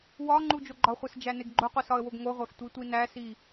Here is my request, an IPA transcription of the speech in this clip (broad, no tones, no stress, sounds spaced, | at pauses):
w ɒ ŋ͡ǃ u d͡ʒ o ɡ͡ǃ ɒ χʷ e s d͡ʒ æ n e ɡ ɡ͡ǃ o qʷ i s ɒ ə̯ w o ɡ ŋ o ʁʷ æ f tʷ i tʷ i n æ s i